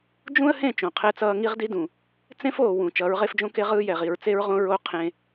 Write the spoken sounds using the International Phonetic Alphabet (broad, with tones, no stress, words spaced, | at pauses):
d͡ʒũ˦ə̯hẽ˦˨ t͡ʃõ˨qʰɛ˦t͡sʌː˦ ŋi˦ʁdi˦dũ˨ | t͡sẽ˦foː˨ wũ˨ t͡ʃʌː˨˦ɹʁe˦fd͡ʒõ˦ke˦ ʁɯː˦jɛ˨ʁi˨ɹ t͡se˦ɹʁõ˦ ɹo˦ qʰẽ˦